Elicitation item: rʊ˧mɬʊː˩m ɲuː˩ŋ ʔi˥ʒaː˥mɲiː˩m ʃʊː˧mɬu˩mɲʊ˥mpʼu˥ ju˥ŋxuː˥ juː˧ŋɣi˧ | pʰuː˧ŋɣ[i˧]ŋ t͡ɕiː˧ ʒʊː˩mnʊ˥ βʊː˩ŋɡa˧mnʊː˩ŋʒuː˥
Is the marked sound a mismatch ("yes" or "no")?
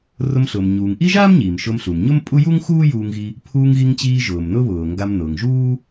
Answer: no